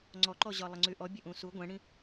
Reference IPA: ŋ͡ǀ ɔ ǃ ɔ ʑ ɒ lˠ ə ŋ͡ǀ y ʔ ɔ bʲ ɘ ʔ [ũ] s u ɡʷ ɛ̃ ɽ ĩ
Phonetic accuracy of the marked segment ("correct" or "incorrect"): correct